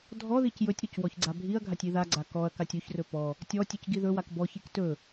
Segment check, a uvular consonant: absent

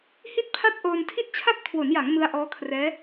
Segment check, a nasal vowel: absent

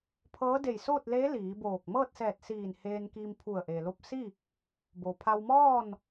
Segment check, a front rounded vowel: absent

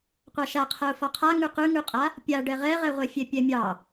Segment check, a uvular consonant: present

